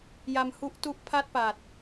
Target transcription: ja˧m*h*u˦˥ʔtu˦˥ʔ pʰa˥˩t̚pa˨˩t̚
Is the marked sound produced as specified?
yes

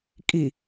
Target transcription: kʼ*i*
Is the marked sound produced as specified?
yes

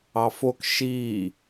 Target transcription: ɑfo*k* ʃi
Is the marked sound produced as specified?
yes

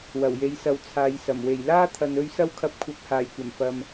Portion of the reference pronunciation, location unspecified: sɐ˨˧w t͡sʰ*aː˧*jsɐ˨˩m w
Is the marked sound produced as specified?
no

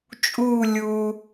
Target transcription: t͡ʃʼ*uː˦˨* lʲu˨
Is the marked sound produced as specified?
yes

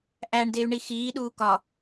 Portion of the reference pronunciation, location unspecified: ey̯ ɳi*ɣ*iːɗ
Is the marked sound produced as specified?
no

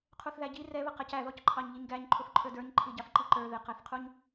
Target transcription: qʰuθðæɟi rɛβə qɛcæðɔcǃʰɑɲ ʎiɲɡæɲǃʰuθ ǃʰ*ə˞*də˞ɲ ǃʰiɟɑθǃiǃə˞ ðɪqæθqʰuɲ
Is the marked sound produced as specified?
yes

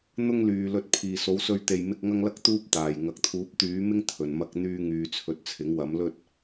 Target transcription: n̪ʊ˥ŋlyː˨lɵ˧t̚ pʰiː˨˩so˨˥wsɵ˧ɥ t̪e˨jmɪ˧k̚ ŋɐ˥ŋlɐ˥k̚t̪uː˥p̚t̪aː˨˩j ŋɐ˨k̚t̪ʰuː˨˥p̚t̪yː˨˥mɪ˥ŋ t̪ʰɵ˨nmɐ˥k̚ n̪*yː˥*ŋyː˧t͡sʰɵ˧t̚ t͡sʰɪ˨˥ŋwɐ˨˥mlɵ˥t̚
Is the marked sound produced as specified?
yes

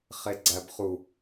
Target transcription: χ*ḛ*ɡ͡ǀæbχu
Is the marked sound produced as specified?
no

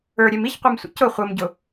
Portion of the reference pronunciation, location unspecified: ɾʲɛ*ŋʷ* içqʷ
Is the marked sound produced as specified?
no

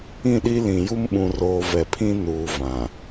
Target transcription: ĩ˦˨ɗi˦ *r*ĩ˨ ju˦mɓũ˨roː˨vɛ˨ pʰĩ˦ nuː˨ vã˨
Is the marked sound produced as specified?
no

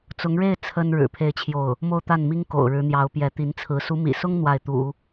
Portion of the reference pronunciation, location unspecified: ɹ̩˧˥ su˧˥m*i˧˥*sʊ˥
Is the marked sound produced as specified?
no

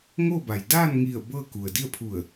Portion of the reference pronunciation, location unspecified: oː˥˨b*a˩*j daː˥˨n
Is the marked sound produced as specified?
yes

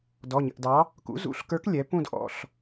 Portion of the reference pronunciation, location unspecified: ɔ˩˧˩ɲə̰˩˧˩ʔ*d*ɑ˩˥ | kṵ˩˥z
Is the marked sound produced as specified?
yes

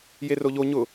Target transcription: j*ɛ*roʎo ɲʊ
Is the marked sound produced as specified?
no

